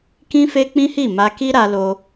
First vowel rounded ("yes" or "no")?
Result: no